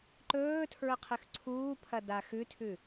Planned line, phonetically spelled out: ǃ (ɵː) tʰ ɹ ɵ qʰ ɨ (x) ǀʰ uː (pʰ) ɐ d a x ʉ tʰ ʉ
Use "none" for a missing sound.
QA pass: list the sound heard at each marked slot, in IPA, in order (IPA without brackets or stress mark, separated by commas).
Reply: ɵː, x, pʰ